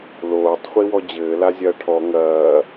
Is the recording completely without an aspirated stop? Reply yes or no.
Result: no